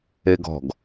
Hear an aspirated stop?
no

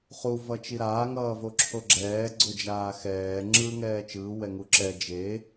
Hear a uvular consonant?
yes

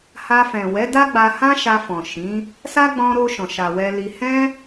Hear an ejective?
no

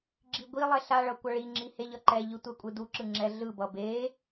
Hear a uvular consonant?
no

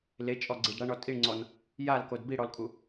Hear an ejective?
yes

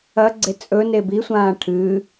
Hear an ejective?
yes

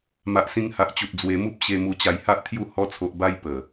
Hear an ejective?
no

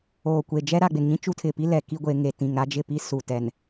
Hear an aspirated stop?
yes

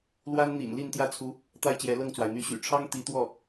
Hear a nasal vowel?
no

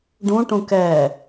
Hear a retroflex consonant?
yes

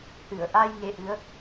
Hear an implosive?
no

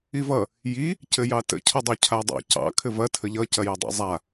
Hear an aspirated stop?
yes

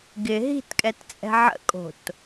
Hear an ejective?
yes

